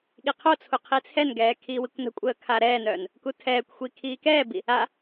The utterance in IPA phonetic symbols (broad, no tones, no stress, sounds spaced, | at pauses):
ɠ i qʰ o t͡sʰ u qʰ i t͡sʰ ɛ n ɡ ɛː kʰ iː w i kʷ n ə̤ kʷʼ əː kʰ aː ɾ ɛː n œː n | k u tʰ ɛː kʷ xʷ i kʰ iː k ɛː b i | a